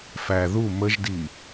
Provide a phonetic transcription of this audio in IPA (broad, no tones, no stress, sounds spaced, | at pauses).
f æ ð u m ə ʒ d i